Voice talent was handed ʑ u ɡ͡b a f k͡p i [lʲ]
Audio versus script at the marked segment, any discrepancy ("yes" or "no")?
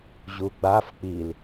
yes